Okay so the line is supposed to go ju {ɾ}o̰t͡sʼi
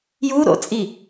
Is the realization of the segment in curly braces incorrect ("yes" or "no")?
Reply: no